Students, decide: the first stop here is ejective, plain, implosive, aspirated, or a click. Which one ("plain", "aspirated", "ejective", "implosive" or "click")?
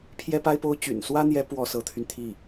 aspirated